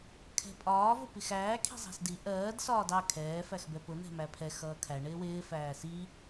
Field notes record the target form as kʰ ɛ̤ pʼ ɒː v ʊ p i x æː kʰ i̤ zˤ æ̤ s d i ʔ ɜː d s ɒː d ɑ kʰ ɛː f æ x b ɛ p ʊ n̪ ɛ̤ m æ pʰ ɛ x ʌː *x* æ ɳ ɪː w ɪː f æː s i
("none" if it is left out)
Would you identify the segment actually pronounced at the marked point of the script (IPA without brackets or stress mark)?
kʰ